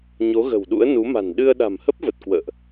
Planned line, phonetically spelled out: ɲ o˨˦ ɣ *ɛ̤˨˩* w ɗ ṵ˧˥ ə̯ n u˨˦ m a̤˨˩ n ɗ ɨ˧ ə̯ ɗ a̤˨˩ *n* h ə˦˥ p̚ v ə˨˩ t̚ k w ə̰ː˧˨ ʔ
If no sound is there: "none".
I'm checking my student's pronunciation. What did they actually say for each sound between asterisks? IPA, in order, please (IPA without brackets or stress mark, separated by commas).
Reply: ə̤˨˩, m